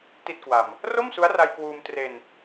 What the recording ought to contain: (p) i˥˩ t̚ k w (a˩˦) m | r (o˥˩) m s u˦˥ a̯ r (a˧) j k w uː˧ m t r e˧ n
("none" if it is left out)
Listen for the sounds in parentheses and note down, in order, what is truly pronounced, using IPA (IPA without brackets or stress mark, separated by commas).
t, a˧, o˥˩, a˧